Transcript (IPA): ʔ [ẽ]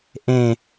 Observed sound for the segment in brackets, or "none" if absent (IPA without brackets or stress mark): ẽ